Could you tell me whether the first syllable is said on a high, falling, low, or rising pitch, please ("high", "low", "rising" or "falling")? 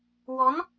rising